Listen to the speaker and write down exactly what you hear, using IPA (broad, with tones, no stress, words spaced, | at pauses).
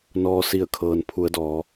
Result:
nɔː˩ si˧˩ə̯kʰɤː˩n pʰu˩˧ə̯dɔː˩˧